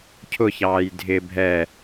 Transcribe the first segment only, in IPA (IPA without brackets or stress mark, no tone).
cʰ